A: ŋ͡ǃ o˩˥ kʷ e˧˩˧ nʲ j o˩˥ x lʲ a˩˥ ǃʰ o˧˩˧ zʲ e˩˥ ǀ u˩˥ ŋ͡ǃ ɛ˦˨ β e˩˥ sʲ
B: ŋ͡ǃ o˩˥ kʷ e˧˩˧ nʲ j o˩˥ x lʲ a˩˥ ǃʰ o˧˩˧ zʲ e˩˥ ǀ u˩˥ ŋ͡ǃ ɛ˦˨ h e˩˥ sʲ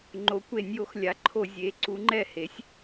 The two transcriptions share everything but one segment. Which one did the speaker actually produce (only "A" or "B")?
B